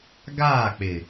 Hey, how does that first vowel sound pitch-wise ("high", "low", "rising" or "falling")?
falling